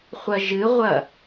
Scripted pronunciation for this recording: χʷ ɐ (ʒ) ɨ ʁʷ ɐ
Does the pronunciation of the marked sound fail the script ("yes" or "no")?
no